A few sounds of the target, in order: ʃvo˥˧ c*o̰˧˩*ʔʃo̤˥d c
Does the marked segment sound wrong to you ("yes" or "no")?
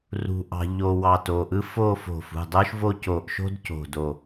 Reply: yes